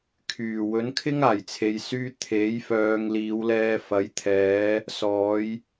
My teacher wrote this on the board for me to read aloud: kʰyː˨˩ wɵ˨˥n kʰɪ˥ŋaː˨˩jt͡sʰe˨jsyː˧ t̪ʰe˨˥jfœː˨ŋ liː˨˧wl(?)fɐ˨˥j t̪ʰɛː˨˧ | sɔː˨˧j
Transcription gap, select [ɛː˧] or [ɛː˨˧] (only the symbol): ɛː˧